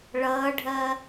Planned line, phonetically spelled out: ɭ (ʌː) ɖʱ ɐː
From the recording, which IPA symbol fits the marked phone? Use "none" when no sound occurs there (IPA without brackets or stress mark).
ʌː